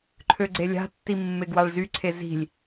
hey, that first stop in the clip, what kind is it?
click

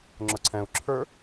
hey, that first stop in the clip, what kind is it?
click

